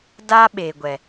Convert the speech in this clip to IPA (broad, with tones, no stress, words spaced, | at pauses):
da˦ ɓe˨ ɡʷɛ˦